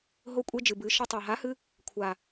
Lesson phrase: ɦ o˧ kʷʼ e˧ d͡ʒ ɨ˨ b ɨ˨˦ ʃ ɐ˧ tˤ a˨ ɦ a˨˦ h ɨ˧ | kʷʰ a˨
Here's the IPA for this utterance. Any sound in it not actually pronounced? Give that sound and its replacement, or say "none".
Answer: none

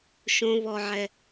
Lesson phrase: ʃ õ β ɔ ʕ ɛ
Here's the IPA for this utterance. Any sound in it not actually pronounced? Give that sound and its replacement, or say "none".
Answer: none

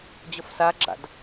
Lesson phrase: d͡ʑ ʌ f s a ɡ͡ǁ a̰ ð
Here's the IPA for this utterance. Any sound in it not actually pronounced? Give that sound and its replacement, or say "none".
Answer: ð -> d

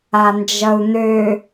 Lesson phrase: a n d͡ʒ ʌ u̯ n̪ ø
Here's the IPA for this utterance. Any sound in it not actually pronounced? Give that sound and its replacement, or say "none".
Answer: none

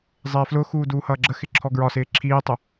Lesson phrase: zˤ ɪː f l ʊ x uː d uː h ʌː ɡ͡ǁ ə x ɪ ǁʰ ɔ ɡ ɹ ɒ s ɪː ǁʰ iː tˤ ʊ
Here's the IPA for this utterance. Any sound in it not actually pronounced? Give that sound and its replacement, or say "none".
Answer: none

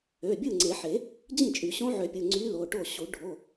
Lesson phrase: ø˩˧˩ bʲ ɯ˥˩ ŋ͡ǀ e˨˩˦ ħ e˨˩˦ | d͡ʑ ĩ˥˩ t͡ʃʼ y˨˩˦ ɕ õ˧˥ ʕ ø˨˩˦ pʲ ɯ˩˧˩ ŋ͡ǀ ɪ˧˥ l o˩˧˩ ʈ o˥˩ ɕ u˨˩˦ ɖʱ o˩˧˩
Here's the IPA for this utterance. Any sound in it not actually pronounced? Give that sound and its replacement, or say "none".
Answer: ɪ˧˥ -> y˧˥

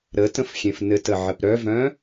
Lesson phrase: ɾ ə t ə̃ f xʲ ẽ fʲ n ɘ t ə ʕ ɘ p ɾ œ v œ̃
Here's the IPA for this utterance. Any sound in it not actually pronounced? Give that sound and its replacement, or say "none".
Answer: fʲ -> f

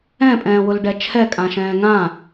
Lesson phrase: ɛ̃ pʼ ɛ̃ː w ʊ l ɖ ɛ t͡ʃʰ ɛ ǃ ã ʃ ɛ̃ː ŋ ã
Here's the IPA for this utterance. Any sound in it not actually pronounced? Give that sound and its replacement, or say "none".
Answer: ǃ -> kʼ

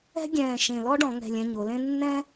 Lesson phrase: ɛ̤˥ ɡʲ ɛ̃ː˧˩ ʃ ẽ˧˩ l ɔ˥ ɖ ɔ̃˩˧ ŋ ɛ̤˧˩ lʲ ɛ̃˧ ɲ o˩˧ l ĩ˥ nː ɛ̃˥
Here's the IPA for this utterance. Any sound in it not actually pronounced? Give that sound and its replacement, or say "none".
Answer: ĩ˥ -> ẽ˥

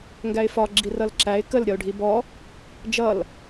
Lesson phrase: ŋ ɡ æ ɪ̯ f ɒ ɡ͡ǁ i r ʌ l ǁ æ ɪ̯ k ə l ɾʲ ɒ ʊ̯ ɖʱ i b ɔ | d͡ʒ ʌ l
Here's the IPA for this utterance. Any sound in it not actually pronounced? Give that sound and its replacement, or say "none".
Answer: none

